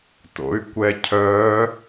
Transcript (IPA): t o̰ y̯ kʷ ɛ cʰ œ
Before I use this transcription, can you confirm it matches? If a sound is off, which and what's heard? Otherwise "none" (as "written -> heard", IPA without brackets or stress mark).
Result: none